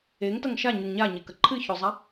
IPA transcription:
e ŋ t ɐ ŋ ʃ a ɲ ʉ ŋ ɲ a ɲ e k ɐ ǃʰ ɨ ç o zˤ a

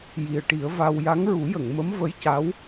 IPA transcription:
j i˨˩ ə̯ ʈ i˨˩˦ ə̯ v a˧ w j a˧˥ ŋ ɹ u˨˩˦ j ə˨˩˨ ŋ m ə˧˥ m v ə˧˥ j c a˧˥ w

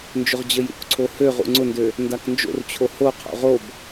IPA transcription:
n d͡ʒ ʊ ʁ d͡ʑ ə j ṵ k ǀʰ o h ø ʁ ṵ ŋ͡ǀ ʊ n d ø | n d a k n d͡ʒ o̰ r t͡ɕʰ o h o qʰ o̰ ʁ o b

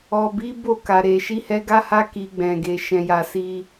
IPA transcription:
ɔ˨ b i˨˦ b o˦˨ k a˨ ɾ e˨ ʃ i˨˦ h ɛ˧ ɡ a˦ h a˦ k i˧ ɡ͡b ɛ̃˨ ɡ e˨ ʃ ɛ̃˨ j a˨ s i˧

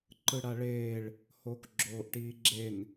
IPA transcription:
ǃ ɯ ɽ a ɭ eː ɭ | h oː k ɡ͡ǁ oː ʔ ʈ iː ɡ͡ǁ e n

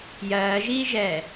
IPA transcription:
j ɜː ʒ iː ʒ ɛː

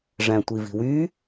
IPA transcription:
ʐ æ̃ tʷ i v i̤ w y

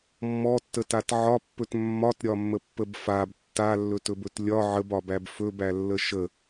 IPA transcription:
mː ɔ tː ə t a t ʕ ɒ pː ɵ t mː ɒ t ɾʲ ɒ mː ə pː ə b f a b tː a lː ɵ t ɵ b ɵ t lʲ ɒ ʕ ə b ɒ b æ b f ɵ b æ lː ə ʃ ə

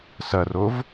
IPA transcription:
s ɐ r o v

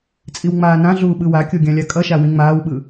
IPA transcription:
t͡sʼ i w ŋ͡m aː n ã ɮ uː ɓ ɯ w a kʲ o ɡʲ ã lʲ a kʼ ʌ ʃ a w ĩ ŋ͡m aː w ɓ ɯ

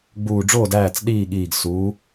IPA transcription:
ɡ͡b uː˧˩ ɖ͡ʐ oː˥˨ d æː˥˨ t͡s ɗ iː˥˨ ɠ iː˧˩ ɡ s uː˨˥

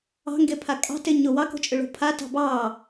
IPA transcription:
ɑ̤ ŋ ɡ e pʰ a kʼ ɑ̤ t e ɲ ʊ w ɑ k o̤ t͡ʃʼ ʏ ɭ o̤ pʰ a t ɑ̤ b ɑ

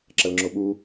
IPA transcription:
ǁ ɐ l ŋ͡ǁ o ɓ u

